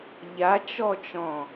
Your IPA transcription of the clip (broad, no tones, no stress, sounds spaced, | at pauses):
ʎ a t͡ʃ ɔ t͡ʃ ɔ̃